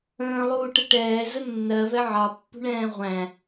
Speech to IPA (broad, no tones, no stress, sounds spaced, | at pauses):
ə̃ː lˠ uː ʈ ə ʈ ɛː z ə nː ɜ v ɛ ʕ ɑ pː ṳ ɳ ɛ̃ː ʁʷ æ̃